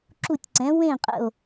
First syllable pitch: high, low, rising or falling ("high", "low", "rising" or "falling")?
falling